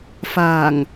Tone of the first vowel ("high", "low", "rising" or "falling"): low